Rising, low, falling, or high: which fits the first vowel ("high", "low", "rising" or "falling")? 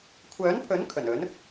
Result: rising